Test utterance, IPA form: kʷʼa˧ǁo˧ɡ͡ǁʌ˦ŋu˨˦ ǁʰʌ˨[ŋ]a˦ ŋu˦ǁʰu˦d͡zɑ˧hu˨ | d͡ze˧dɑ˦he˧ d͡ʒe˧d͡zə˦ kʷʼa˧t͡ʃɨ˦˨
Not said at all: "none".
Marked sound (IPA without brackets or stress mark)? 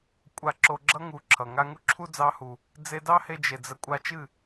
ŋ